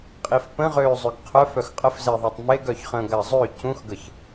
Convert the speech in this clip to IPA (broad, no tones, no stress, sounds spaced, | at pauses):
qʼ i f p ə̃ ʁ øː zˤ ø ɡ qʰ œ f œ x qʼ ə f z e ðˤ a tˤ m e ɡ œ ç χ ə̃ː ɡ a zˤ ø c ũ x ɡ ə ç